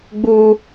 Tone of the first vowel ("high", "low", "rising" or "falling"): high